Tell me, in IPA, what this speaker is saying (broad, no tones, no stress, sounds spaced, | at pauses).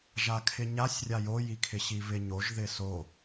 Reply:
ʒ a kʰ ɪ ɲ a sʲ rʲ a j o j i kʰ ɪ ɕ i β ɪ ɲ o ʒ ð ɪ s o